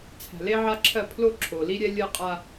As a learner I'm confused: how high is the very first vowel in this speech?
low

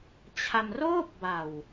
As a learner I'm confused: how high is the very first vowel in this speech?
low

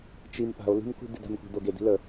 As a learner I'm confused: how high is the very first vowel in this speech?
high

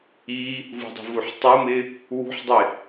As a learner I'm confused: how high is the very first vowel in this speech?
high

